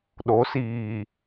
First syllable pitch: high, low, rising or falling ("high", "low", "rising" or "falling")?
rising